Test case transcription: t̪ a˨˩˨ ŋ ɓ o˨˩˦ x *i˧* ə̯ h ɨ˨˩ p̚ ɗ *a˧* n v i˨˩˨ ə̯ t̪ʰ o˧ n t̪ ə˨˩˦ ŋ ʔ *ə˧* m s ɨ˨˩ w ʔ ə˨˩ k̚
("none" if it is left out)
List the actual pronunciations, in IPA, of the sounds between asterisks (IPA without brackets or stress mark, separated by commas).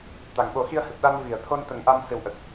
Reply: i˧, a˧, a˧